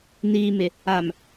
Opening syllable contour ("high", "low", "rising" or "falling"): low